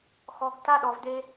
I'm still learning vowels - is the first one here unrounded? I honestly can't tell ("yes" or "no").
no